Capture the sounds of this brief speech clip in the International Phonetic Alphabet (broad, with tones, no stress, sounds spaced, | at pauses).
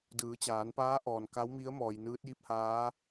d ɯː˩˧ t͡ɕ aː˩˧ n p aː˧˥ ʔ ɔː˩ n k a˧˥ w m i˧˥ ə̯ m ɔː˩ j n ɯː˧˥ t̚ j i˧˥ p̚ h aː˧˥